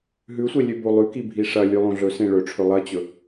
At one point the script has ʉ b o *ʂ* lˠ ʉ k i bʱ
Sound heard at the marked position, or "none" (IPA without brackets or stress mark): none